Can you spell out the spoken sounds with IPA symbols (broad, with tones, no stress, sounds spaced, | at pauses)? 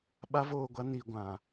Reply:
ɓ a˦ v oː˦˨ ɡʷ a˦ n iː˨ ɡʷ ã˨